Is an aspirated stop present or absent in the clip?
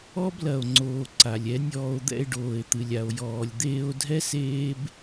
absent